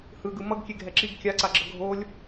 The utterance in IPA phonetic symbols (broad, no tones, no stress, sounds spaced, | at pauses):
h ɯ ɡ ɯ m ʌ ɡ kʲ e ɡʱ ɛ ǁ i ɡ kʲ a ǀ a ɡ͡ǁ ʌ ɡʱ o lʲ